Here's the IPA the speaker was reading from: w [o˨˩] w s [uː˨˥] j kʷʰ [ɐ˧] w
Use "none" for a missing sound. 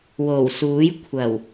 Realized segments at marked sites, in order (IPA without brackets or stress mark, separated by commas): o˨˩, uː˨˥, ɐ˨˩